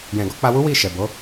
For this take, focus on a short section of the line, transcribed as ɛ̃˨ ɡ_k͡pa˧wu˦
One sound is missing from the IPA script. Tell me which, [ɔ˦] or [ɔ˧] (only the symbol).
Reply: ɔ˧